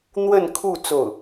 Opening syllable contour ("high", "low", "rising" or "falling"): falling